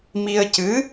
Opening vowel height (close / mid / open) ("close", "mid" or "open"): close